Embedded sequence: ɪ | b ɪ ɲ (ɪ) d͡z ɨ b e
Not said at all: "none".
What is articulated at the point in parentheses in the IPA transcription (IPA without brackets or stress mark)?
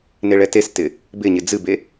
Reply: ɪ